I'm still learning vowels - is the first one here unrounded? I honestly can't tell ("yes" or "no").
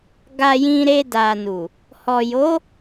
yes